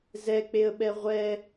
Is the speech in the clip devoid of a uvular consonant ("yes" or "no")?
no